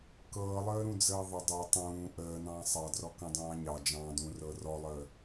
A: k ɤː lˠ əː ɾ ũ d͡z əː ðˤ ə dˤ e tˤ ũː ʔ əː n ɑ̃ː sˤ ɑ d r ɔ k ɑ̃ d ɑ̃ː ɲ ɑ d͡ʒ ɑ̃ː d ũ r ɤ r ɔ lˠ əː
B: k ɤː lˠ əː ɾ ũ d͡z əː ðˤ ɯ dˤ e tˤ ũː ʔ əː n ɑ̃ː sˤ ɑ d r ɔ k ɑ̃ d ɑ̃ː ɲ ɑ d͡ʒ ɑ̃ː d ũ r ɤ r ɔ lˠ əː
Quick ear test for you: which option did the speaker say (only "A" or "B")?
A